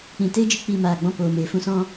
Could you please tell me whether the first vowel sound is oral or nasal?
nasal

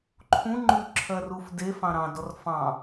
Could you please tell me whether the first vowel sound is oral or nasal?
nasal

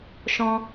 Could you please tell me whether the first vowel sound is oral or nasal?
nasal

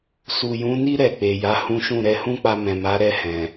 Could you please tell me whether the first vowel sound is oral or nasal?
oral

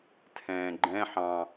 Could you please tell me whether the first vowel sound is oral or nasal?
nasal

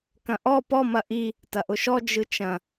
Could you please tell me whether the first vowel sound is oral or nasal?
nasal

